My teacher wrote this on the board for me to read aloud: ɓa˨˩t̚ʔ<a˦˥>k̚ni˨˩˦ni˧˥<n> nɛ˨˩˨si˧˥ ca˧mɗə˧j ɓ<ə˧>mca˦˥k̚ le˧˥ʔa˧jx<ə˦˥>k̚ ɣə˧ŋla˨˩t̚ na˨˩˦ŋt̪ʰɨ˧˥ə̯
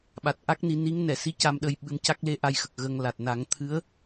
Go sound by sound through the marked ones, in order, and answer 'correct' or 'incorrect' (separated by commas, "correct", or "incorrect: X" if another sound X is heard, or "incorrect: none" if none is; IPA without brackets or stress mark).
correct, incorrect: ŋ, incorrect: ɨ˧, incorrect: ə˨˩